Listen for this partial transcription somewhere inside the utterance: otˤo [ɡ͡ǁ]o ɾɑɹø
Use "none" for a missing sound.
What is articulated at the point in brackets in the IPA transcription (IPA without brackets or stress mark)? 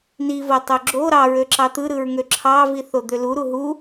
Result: ɡ͡ǁ